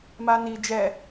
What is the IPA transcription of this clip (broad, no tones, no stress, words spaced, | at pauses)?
mani d͡ʒɛ